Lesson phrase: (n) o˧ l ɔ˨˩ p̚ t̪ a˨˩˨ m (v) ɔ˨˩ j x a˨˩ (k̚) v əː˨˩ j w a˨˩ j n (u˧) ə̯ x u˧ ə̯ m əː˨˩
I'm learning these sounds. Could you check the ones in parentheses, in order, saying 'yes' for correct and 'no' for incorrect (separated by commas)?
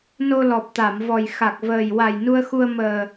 yes, yes, yes, yes